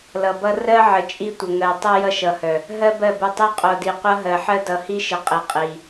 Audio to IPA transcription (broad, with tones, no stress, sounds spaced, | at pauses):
l ʌ˨ b ʌ˦ r ɜ˦ ʕ ə˨ t͡ʃʼ i˦ tʷ ə˨ ŋ ɜ˨ tˤ ʌ˦ j ʌ˦ ʃ ʌ˨ h œ˨ | ɦ ɜ˦ b ɜ˦˨ b ə˦˨ tˤ i˦ qʼ o˨ d i˨ qʷ ʌ˦ ɦ ɜ˨ ħ ɜ˦ d ʌ˨ h i˦ ʃ ə˨ qʼ i˨ qʼ i˨